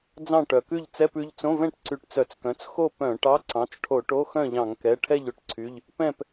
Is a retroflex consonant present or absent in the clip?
present